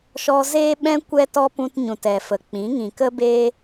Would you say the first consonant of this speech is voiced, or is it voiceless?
voiceless